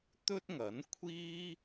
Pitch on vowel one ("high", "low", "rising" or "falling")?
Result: high